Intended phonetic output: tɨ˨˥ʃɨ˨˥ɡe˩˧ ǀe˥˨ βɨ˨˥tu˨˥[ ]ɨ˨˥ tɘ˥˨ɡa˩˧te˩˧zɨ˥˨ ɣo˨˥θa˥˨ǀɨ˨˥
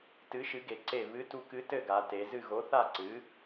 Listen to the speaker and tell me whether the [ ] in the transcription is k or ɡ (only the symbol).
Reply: k